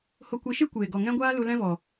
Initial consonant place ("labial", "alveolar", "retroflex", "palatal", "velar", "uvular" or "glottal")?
glottal